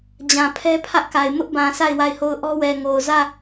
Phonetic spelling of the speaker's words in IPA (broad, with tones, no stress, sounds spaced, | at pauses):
d͡ʑ ã˨ pʰ ɛ˦ pʰ ä˦ ʔ k a˨ ɪ̯ m ʊ˦ ʔ b ã˨ sʰ a˦˨ ɪ̯ w a˦˨ ɪ̯ h o˦˨ ʊ̯ ʔ ɔ˦ w ɛ˨ ŋ o˨ ʊ̯ z ä˦˨